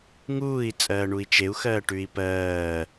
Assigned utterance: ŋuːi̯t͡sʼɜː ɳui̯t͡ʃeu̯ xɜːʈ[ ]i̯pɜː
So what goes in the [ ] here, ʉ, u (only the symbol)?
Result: ʉ